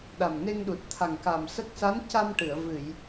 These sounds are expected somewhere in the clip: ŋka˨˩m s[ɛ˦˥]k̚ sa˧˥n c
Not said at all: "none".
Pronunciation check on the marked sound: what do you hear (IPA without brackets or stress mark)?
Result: ə˦˥